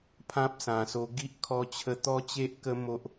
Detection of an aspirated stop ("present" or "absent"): present